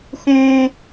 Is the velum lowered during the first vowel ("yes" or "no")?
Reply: yes